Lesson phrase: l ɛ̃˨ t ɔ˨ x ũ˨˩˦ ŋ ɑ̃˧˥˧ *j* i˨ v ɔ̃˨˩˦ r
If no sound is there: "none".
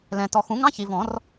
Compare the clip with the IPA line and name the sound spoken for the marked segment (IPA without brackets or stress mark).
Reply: ç